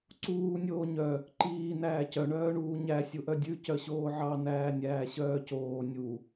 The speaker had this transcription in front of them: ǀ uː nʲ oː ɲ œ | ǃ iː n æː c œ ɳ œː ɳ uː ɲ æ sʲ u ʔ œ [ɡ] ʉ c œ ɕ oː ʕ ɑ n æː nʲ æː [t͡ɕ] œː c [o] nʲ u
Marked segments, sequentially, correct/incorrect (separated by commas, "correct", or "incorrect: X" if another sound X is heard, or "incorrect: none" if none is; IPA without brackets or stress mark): incorrect: dʲ, incorrect: ɕ, incorrect: oː